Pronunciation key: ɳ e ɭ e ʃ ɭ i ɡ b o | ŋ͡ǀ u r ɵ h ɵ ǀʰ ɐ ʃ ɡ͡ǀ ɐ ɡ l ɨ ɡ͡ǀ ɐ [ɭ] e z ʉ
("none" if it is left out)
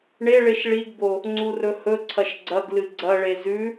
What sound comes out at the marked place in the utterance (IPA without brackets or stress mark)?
ɭ